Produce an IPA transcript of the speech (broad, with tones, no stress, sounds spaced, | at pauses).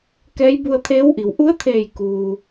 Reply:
k ɛː˧˥ j b u˧ ə̯ t̪ʰ eː˧˥ w ʔ i˩˧ w ʔ u˧˥ ə̯ t̪ʰ eː˧˩ j k uː˩